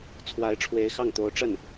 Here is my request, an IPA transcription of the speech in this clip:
t͡sʰwa˧˥ɪ̯ʈ͡ʂʰwe˧˥ɪ̯xɑ˥˩ŋt̪o˧˥ʊ̯ ʈ͡ʂə˥˩n

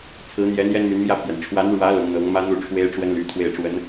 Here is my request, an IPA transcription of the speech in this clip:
t͡sʰɹ̩˧˥n̪jɛ˧˥ n̪jɛ˥nmy˧˥nmjä˥˩pʰjɛ˩n ʈ͡ʂʰwa˧˥nɻwä˧˥ lʊ˧˥ŋn̪ɤ˧˥ŋ mä˥n̪u˥˩ ʈ͡ʂʰwe˥ɪ̯ʈ͡ʂwə˥nly̰˨˩ t̪ʰwe˥˩ɪ̯ʈ͡ʂwə˧˥n

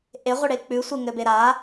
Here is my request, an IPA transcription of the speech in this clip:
ʔeʁʷəɽe k͡pʉsʷe ŋɘbeɾa

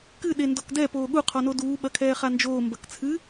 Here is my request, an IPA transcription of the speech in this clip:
kɨ ɗendɔkdɛ poːɠu qʰɔnoduː ɓɐkʰɛːχand͡ʒoː mbɐkt͡sʰɨ

